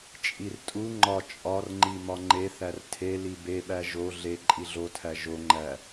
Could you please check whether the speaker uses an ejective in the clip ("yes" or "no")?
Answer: yes